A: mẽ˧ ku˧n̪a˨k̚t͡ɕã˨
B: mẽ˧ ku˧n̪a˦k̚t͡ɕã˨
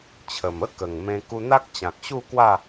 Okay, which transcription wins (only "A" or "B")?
B